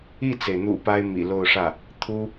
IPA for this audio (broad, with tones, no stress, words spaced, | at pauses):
i˥˩t͡se˩ɪ̯n̪ṵ˨˩ pa˥ɪ̯mḭ˨˩lo˥˧ʊ̯ʂä˥˩ | t̪ʰu˥